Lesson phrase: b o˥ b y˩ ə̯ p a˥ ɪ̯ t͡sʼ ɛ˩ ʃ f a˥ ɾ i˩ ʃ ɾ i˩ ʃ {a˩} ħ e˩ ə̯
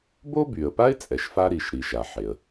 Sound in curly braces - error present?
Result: no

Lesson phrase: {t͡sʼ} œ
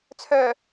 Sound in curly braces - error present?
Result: yes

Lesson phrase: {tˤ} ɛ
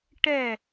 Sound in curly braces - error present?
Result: yes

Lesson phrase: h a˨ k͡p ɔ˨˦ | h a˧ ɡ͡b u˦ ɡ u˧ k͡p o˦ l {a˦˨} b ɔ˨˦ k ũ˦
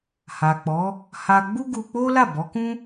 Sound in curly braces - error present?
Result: no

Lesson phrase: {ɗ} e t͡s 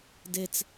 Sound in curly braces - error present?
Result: yes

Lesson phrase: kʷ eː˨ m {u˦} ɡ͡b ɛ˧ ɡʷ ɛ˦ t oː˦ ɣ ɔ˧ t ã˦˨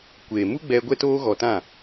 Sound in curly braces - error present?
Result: no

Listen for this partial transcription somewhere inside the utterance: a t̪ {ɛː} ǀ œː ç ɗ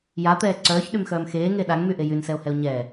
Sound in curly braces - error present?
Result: no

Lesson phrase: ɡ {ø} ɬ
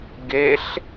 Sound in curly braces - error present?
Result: yes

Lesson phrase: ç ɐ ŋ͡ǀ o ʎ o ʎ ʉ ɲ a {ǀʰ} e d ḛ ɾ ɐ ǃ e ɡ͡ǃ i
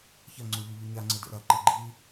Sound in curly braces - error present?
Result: yes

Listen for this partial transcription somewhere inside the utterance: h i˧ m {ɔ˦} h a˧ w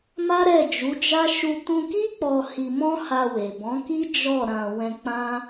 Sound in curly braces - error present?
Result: yes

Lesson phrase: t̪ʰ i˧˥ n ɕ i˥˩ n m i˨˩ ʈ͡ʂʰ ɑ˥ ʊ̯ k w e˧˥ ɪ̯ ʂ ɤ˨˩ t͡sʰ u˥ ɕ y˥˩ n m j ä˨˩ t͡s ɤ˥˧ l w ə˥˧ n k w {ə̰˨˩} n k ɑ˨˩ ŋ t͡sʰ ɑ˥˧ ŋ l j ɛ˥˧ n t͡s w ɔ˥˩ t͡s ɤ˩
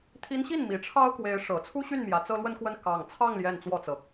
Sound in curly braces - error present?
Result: yes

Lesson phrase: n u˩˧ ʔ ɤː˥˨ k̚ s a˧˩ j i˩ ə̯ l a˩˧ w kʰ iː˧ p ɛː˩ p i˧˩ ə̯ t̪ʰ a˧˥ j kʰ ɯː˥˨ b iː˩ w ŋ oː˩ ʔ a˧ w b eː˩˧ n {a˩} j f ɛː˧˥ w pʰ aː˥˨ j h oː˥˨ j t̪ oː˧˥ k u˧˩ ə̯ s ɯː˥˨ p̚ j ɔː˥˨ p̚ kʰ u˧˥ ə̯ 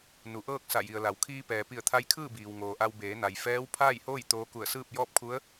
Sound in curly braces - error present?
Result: no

